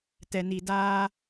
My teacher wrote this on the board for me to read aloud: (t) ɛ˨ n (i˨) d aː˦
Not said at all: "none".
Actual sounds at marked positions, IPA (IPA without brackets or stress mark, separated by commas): t, i˨